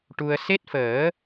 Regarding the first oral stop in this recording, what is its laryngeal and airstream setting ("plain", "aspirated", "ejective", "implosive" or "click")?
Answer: plain